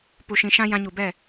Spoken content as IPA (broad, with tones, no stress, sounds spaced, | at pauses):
p u˨ ʃ ĩ˨ ʃ ã˧ j ã˧ ɲ u˨ b ɛ˦˨